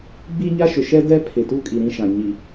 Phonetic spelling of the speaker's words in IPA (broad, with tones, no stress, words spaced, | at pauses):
ɡ͡bi˦ɲa˦ʃʊ˨ ʃɛ˦dɛ˦ pʰɪ˨tu˦kʼi˨ ɾĩ˦ʃã˨ ɲi˨